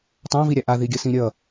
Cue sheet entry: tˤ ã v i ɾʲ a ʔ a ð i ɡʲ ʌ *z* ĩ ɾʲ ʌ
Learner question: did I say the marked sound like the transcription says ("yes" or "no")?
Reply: no